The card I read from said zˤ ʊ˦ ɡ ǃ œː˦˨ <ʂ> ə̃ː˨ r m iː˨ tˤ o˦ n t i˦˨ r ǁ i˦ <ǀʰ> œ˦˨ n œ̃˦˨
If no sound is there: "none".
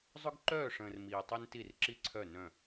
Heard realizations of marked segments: ʂ, ǀʰ

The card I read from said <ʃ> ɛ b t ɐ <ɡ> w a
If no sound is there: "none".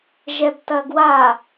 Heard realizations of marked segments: ʒ, ɡ

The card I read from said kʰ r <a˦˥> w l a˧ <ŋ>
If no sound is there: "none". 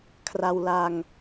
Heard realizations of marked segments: a˧, ŋ

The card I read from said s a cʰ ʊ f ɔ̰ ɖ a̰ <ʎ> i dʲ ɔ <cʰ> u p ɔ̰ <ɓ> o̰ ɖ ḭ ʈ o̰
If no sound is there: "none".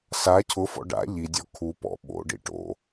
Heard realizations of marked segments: ʎ, kʰ, ɓ

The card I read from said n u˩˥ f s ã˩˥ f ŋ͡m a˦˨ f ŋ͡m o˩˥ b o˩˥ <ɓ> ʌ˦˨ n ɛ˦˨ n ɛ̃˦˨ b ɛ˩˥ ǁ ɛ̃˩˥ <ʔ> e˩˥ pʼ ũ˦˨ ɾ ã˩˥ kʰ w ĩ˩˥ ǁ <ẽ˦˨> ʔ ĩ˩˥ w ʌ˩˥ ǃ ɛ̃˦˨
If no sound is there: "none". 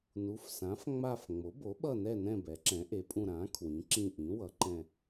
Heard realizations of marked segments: ɓ, ʔ, ĩ˦˨

